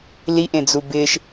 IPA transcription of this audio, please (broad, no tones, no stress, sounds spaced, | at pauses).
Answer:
l i ʔ ẽ d͡z u b ɪ ʃ